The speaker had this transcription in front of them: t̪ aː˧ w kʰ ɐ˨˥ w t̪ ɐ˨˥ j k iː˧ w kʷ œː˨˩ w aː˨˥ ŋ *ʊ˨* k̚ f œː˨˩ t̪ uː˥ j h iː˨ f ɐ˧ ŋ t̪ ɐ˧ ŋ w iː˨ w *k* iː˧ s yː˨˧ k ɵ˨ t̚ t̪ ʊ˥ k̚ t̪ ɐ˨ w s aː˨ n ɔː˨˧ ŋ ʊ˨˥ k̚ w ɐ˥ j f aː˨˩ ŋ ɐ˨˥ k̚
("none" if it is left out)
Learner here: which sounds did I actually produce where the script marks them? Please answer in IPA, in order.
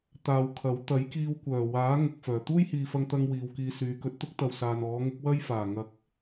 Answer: ʊ˨, k

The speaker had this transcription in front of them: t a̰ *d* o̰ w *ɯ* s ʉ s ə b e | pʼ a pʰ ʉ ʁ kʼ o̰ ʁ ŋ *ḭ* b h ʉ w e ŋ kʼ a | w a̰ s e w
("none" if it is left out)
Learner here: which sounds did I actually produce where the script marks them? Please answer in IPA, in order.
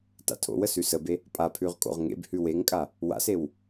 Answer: tʰ, ə, ḛ

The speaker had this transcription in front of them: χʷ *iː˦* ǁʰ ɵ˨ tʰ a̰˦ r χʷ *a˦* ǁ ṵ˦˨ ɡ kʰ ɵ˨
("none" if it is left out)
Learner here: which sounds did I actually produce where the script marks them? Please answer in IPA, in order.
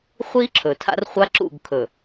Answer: i˦, a˦

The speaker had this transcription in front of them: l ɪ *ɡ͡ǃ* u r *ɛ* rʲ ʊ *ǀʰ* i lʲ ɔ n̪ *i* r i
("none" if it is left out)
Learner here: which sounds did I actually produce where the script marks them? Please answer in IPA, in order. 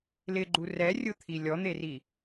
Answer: ɡ͡ǃ, ɛ, t̪ʰ, e

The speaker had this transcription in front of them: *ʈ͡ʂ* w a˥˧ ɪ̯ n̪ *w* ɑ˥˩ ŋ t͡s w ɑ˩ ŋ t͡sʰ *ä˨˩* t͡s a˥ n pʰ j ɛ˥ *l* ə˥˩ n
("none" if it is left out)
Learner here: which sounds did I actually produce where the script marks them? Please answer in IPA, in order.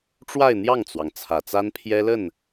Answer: ʈ͡ʂ, j, ä˨˩, l

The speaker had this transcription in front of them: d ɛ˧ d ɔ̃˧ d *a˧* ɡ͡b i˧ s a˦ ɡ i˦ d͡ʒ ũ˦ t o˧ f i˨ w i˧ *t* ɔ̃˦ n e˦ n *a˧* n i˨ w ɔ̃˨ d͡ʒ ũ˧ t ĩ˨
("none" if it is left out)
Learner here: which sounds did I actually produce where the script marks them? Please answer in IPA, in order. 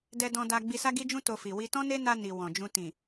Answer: a˧, t, a˧

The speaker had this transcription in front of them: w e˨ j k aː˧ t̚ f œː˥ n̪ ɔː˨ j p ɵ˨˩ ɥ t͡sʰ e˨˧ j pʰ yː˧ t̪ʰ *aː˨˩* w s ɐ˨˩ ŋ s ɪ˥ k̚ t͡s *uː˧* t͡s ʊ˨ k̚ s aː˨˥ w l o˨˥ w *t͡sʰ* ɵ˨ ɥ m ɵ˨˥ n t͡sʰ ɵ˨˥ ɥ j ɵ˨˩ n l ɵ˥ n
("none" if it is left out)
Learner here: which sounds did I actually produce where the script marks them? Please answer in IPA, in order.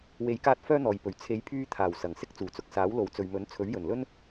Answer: aː˨˩, uː˨˩, t͡s

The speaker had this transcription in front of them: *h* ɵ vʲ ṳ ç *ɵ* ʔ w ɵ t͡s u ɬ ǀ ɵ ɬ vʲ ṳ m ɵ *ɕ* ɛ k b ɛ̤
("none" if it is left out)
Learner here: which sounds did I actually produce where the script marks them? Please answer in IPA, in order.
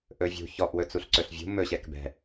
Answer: ʔ, ɔ, ɕ

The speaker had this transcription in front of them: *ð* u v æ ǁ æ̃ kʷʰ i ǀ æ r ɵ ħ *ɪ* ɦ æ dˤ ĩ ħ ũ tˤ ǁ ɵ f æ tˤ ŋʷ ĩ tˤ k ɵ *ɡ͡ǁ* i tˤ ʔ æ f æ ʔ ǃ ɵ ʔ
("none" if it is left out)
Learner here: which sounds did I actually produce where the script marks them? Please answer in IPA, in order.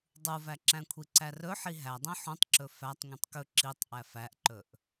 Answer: dˤ, i, ǁ

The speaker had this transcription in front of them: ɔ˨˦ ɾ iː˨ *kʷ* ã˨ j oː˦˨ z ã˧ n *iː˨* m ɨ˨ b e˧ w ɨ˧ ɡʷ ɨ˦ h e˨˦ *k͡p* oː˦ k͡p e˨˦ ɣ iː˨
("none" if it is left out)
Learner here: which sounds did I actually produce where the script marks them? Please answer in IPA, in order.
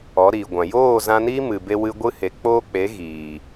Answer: ɡʷ, iː˦, k͡p

